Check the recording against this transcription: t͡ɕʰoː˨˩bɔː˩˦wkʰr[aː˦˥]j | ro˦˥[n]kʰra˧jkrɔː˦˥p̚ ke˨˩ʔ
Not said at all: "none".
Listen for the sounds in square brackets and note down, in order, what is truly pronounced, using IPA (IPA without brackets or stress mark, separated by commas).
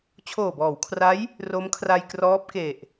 a˦˥, m